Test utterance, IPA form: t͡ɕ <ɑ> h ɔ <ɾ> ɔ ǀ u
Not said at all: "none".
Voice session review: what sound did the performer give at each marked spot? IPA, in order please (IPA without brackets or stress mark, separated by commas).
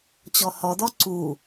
ɔ, d